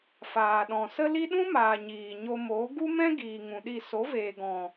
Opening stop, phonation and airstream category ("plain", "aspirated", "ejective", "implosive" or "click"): implosive